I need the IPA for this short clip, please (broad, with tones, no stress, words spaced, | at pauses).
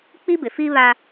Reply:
k͡pi˦bɪ˨fi˦ βa˦